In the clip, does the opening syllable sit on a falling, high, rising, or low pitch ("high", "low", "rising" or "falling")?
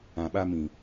low